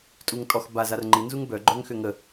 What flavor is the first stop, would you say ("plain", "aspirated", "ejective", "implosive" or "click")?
ejective